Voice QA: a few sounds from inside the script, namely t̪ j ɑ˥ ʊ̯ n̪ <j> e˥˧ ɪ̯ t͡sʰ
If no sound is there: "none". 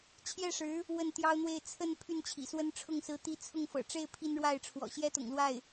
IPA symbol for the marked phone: w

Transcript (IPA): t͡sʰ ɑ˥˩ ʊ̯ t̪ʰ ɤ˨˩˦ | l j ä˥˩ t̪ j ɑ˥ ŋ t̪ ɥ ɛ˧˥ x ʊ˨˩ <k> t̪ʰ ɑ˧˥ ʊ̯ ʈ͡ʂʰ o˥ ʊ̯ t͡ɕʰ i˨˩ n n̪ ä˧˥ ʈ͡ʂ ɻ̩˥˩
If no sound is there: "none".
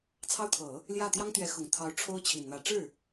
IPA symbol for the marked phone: ŋ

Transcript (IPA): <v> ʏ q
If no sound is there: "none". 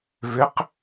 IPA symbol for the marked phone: v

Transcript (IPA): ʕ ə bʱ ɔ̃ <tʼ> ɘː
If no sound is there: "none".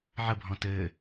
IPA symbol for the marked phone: t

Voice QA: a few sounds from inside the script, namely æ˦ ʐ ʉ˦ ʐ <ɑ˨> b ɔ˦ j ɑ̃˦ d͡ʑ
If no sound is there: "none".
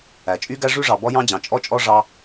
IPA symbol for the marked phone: ɑ˨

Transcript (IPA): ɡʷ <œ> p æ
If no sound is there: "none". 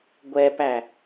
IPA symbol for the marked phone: ɛ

